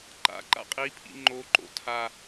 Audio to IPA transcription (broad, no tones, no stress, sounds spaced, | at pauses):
ǃ a̰ ǃ a̰ qʼ i pʰ ḭ ŋ͡ǃ o ǃ o̰ tʰ a